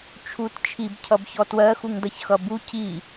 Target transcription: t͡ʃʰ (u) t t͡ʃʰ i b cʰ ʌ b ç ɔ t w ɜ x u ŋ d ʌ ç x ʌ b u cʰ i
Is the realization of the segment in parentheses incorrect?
no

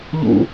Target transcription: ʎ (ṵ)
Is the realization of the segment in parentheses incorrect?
no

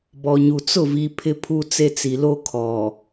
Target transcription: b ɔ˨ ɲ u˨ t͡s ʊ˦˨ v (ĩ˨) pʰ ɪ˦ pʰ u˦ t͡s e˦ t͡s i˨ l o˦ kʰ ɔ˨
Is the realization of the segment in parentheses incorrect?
yes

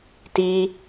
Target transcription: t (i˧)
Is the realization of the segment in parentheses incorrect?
no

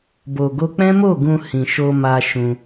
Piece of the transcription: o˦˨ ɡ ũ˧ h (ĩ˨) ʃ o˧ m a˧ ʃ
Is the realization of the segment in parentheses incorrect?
no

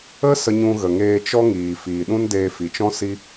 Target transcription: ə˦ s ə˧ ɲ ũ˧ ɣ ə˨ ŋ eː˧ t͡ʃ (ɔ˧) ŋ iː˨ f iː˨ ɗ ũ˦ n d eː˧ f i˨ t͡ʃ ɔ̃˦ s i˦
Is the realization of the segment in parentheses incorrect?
yes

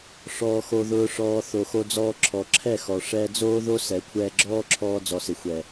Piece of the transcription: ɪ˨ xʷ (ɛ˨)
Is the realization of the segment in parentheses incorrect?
no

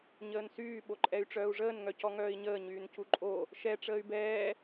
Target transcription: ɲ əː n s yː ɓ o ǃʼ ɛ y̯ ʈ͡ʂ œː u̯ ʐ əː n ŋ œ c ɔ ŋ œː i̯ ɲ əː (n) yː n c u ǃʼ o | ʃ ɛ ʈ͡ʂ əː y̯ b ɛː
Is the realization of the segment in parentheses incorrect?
yes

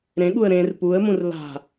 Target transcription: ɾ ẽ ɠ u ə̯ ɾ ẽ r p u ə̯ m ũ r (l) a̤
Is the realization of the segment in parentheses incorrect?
no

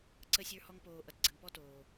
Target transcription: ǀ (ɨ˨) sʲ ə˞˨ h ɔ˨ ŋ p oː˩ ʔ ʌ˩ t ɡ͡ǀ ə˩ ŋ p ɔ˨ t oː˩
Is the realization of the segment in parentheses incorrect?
yes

